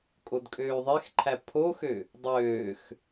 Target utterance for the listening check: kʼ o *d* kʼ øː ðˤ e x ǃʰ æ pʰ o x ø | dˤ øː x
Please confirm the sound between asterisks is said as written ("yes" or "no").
yes